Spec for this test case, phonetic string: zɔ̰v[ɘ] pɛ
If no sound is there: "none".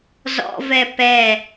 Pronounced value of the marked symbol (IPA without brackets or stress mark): ɛ